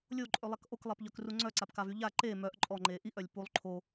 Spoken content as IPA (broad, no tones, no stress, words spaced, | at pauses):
lʲoǃʼølˠak ʔoklˠɛpʎœkru ŋ͡ǀœǀapkavy ʎa ǃe mœʔ ǃʼɔŋ͡ǃe ʔiʔœlʲ pulˠ ǃʰo